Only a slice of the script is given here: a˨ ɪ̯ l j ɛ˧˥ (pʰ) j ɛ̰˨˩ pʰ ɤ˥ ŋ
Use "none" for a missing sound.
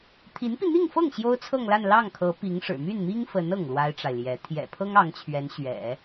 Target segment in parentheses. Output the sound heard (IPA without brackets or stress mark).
t̪ʰ